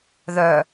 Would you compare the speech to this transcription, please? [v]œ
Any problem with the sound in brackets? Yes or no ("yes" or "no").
yes